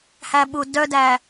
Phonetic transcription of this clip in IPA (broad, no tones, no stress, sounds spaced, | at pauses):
h æ ɓ u d œ d æ